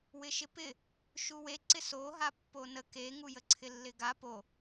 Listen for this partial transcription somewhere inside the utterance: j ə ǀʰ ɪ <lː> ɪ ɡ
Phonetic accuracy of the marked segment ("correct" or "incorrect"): correct